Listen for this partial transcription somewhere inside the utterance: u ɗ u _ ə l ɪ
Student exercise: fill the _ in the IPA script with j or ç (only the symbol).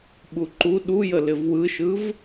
j